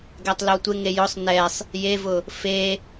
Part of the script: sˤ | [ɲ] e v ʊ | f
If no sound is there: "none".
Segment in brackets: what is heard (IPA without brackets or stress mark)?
j